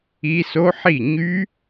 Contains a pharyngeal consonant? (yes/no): yes